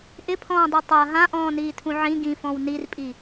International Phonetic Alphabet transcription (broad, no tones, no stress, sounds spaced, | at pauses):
ʔ ɪ pʰ ɔ̃ː dˤ u tˤ a ɦ ã ʔ ɔ̃ː n iː tʰ ũ ʕ ĩ ɡ ĩ f ɔ̃ w n i r pʼ i